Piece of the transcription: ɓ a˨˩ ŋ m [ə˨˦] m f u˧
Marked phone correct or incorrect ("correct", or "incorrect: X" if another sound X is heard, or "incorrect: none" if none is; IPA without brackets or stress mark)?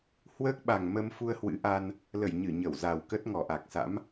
incorrect: ə˧